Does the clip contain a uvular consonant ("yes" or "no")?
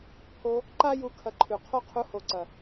yes